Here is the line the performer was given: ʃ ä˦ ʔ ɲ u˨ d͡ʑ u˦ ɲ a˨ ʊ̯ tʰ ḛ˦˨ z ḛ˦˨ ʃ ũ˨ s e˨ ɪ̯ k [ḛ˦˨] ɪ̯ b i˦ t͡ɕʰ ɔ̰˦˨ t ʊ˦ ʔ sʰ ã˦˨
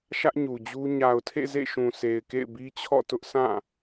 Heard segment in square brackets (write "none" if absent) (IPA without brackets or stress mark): ḛ˦˨